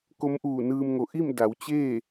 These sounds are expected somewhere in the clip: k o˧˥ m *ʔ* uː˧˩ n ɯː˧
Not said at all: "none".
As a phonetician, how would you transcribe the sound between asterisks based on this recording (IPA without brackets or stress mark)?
ʔ